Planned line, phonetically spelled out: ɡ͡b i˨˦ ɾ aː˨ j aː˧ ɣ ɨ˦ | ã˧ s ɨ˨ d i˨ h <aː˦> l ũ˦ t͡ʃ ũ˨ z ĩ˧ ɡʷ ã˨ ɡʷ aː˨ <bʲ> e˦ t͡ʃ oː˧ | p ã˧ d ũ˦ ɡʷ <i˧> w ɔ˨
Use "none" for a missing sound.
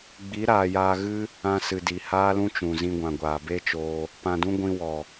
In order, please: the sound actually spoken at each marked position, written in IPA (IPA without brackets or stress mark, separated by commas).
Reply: aː˦, b, ĩ˧